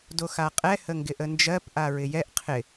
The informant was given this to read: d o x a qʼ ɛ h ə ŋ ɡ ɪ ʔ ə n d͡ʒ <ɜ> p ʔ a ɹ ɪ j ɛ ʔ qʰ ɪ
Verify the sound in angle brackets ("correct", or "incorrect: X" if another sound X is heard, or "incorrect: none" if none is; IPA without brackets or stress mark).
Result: correct